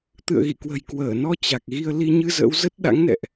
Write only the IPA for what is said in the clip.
t̪ ɨ̰˧˨ ə̯ ɣ ḭ˧˨ k w ə̤˨˩ j k w əː˧˩ n ɔ˧ t͡ɕ a˨˩ k̚ ɣ i˧ ə̯ l i˧ ɲ ɨ˧ z ə̰˧˥ w z ə˦˥ t̚ ɗ a̰˧˥ ŋ n ɛ̰˧˨ ʔ

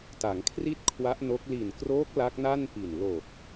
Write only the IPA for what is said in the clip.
t a˩˦ ŋ kʰ r i˥˩ t̚ kʰ w a˦˥ ʔ n o˦˥ k̚ l i˨˩ n k r oː˦˥ k̚ l a˦˥ k̚ n a˥˩ n p i˨˩ n l o˨˩ k̚

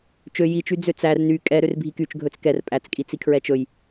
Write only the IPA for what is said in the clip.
t͡ʃ ø j i t͡ʃ y d͡z ø t͡s æ r n y kʼ ɛ ɾ ø r bʱ i k y t͡ʃ ɡʱ ɵ t͡s k ɛ r pʼ æ t͡s kʼ i t͡s i kʰ ɹ ɛ t͡ʃ ɵ j

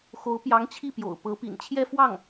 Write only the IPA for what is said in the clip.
x o˧˥ ʊ̯ p j ɑ˧˥ ŋ t͡ɕʰ i˥˩ p j o̰˨˩ ʊ̯ p ɤ˧˥ p ḭ˨˩ n t͡ɕʰ j ɛ˥˧ f w ɑ˥˩ ŋ

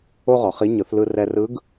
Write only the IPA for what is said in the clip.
o˥ ʁ ɔ˩˧ χ i˧˥ ɲ ɯ˩˧ θ l ɯ˧ r ɛ˧ r ɯ˧˥ ɡ

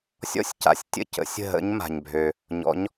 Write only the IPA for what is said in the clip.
sʲ ɔ̰˥˧ sʲ c a̰˩ sʲ tʲ ə̰˥˧ c ə̰˩˥ sʲ ə̤˥˩ ɦ ə̰˧˥ ɲ m a̤˩ ɲ bʱ ø˩ | ɲ ɔ̰˩˥ ɲ

